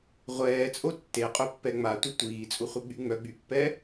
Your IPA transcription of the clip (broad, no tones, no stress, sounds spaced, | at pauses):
ʁʷ ɛː t͡sʼ o tː e qʼ ø pː ɛ ŋ͡m a tʷ ə tʷ iː t͡sʼ u χʷ ə ɡ͡b y ŋ͡m œ ɡ͡b y pː ɛ